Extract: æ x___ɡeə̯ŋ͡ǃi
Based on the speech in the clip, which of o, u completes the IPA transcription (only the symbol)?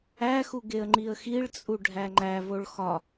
u